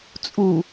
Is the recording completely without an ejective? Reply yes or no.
no